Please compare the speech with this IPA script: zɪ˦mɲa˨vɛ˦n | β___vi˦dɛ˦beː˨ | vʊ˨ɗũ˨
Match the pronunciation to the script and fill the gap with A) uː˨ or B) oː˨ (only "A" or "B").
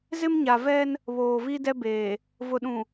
B